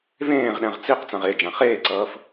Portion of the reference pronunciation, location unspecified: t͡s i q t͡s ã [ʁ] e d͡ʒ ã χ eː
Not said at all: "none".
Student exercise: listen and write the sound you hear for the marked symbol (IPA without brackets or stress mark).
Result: ʁ